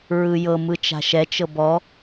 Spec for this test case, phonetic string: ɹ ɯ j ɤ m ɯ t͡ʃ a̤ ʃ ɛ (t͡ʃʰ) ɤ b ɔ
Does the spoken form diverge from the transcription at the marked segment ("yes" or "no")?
yes